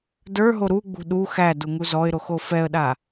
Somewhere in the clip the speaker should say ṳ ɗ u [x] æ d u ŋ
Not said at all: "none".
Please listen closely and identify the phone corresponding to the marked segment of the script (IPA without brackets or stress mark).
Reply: x